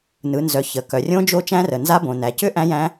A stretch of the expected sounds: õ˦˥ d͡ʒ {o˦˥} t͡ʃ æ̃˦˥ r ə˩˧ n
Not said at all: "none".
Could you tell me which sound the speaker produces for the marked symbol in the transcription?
o˦˥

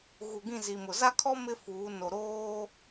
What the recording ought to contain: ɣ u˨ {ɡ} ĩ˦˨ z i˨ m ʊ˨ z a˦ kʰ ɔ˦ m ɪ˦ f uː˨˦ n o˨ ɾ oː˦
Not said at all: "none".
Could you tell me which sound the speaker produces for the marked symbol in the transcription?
ɡ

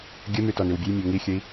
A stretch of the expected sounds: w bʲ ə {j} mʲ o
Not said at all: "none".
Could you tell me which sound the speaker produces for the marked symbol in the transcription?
j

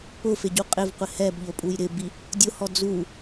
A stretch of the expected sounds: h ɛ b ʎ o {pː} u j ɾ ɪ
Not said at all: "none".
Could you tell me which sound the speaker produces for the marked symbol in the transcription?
pʼ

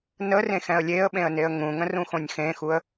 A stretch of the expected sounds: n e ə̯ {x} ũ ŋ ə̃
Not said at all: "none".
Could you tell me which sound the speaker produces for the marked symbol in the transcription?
ŋ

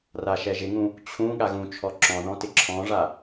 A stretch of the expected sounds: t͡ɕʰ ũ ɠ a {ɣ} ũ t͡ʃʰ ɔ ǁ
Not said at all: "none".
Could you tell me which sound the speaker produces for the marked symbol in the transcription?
ɣ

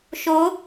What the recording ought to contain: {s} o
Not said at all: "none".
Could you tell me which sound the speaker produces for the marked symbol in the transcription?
ʃ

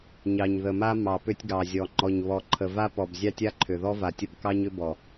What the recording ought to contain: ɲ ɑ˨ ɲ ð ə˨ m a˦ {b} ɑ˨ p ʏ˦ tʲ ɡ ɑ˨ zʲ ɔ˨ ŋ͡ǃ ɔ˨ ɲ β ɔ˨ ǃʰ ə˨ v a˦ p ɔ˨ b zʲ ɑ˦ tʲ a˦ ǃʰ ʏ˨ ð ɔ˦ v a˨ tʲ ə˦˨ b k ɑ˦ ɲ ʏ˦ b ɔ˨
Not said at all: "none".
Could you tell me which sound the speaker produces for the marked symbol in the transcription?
m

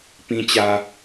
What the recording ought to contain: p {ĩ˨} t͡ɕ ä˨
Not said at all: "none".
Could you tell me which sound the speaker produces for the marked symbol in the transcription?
ĩ˨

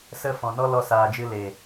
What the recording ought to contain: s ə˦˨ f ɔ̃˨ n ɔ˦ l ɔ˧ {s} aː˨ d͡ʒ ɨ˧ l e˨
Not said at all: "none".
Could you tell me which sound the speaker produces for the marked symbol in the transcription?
s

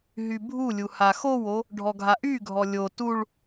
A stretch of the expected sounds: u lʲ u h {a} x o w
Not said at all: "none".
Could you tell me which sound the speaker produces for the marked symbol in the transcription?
a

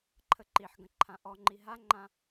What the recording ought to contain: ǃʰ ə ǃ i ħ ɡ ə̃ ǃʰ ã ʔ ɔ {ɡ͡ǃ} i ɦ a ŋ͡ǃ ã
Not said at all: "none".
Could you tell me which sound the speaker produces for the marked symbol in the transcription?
ŋ͡ǃ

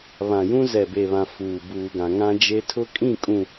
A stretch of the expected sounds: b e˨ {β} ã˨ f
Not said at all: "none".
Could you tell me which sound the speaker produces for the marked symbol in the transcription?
β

